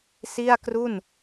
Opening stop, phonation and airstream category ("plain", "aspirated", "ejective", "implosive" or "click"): plain